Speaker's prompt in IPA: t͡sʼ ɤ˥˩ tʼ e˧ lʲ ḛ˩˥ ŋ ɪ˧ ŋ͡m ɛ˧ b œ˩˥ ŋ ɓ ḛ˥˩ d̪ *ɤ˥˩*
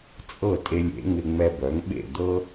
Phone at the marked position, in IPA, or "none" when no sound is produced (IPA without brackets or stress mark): ɤ˥